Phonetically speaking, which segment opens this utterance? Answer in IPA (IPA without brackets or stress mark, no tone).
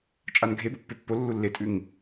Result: t͡ʃʼ